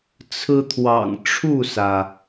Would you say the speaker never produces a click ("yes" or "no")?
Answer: yes